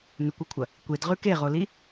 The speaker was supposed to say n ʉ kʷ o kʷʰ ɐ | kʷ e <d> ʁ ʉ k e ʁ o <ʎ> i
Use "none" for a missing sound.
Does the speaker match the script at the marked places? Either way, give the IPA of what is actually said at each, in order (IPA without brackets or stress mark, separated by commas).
d, l